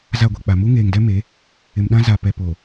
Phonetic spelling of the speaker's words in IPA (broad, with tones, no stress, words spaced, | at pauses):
za˦˨ɡʷi˨k͡pa˨ mu˦ŋeː˨ŋdɛ˦ me˨˦ | ɪ˨mɗã˦ za˨ pɛ˨poː˨